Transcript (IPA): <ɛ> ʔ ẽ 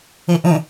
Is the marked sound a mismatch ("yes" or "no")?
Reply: yes